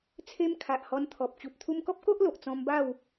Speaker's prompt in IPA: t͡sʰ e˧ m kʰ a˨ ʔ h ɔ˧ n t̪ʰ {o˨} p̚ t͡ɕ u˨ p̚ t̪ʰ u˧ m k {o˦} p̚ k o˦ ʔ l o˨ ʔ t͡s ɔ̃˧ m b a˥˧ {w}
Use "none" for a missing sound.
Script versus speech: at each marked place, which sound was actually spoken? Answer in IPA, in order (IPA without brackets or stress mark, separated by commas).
ɔ˨, ɔ˦, w